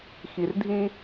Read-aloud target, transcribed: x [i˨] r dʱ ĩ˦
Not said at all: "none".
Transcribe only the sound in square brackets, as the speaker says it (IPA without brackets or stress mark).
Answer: i˨